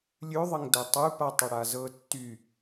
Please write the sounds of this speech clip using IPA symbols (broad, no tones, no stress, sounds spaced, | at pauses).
lʲ ʉ ðˤ ə ŋ d ɤ tˤ ʉ p a tˤ ə ɽ a z ɤ tː y